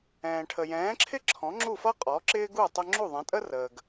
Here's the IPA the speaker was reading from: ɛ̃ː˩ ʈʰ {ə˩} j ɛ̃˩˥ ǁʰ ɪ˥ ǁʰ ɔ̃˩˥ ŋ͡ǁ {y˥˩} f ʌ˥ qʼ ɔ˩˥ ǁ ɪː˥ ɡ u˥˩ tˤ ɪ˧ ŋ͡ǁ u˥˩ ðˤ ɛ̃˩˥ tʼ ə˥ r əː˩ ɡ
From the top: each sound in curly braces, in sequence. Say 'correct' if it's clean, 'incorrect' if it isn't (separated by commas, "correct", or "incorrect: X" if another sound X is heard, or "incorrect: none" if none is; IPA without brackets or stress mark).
correct, incorrect: u˥˩